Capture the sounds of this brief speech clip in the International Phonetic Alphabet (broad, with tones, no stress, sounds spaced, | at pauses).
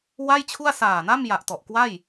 w a˥˩ j t͡ɕʰ u˥˩ a̯ s aː˨˩ n a˥˩ m j a˨˩ ʔ t ɔ˨˩ ʔ k w a˥˩ j